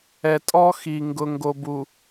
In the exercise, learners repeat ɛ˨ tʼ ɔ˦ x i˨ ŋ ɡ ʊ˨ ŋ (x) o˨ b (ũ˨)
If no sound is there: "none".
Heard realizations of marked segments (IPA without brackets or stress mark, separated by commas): ɡ, u˨